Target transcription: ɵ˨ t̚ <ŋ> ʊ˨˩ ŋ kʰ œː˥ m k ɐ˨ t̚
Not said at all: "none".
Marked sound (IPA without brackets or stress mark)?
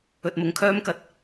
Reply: m